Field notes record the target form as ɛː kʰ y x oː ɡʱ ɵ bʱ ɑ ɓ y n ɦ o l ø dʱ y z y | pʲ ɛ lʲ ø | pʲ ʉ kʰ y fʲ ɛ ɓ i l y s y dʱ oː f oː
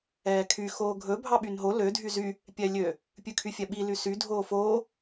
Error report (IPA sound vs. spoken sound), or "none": none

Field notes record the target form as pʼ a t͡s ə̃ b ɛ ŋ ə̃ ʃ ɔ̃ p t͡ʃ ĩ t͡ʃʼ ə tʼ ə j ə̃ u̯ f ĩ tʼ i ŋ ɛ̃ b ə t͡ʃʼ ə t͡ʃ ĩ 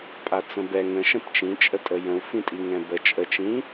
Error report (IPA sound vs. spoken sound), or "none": ɔ̃ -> ə̃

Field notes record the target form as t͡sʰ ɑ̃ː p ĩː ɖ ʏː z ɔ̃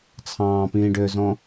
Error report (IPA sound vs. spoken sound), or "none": none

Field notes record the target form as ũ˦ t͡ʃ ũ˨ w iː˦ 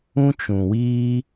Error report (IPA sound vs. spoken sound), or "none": none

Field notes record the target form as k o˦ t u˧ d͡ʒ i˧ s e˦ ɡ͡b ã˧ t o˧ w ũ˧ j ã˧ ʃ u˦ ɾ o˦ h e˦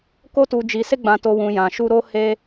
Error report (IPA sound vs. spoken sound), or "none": none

